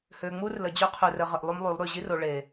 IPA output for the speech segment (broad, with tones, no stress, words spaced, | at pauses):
hø˨ŋ͡mu˦rlə˨d͡ʑø˦ qʰø˨rə˨ʁə˨ʔ lˠu˦mlˠy˨˦lˠɾy˨ ʑi˦ro˨ ɭe˨